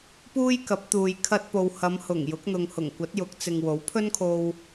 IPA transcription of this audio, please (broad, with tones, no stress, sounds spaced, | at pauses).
p uː˥ j k ɐ˨˥ p̚ t̪ uː˨ j kʰ ɐ˧ t̚ p o˨ w h ɐ˨˧ m h ʊ˨˩ ŋ j ʊ˨˥ k̚ n̪ ʊ˨ ŋ h ʊ˨˩ ŋ kʷ ɐ˨˥ t̚ j ʊ˨˥ k̚ t͡s ɪ˨ ŋ w o˨˥ w pʰ ɵ˥ n kʰ o˧ w